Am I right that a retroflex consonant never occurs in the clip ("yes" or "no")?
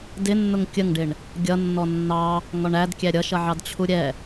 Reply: no